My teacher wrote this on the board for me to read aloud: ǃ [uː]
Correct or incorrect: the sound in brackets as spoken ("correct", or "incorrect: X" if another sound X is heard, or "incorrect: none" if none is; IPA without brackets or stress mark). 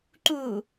correct